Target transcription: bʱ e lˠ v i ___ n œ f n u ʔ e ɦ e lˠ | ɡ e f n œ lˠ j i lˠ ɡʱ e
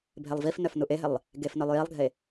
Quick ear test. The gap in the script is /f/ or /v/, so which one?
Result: f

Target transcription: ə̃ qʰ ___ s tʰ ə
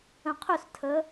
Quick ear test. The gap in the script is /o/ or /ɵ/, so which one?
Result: ɵ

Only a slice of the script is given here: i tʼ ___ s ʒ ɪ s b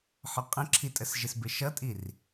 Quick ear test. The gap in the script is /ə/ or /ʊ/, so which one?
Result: ə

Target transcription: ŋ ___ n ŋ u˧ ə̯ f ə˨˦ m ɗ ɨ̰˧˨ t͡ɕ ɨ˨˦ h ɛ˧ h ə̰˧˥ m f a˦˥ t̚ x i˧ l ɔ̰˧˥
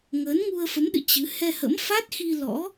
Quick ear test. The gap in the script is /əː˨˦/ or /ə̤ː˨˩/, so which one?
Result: əː˨˦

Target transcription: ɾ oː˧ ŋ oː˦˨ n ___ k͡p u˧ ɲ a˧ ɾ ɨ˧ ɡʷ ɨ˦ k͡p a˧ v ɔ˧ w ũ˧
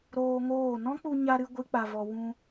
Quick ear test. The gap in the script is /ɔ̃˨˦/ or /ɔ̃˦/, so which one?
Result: ɔ̃˦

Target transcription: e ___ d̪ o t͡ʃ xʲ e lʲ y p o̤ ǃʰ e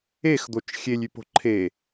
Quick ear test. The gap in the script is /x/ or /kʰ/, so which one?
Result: x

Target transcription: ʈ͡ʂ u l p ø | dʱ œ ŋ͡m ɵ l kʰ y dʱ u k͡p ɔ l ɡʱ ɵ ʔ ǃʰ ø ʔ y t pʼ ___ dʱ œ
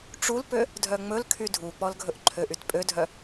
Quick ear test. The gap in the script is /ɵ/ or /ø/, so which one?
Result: ø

